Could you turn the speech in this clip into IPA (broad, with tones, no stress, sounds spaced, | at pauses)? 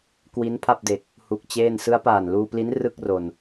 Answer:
k w i˦˥ n pʰ a˥˩ p̚ d e˨˩ k̚ | h u˦˥ k̚ t͡ɕ eː˥˩ n s ɯ˦˥ a̯ p aː˨˩ n l uː˧ p l i˦˥ n r ɯ˥˩ k̚ r o˨˩ n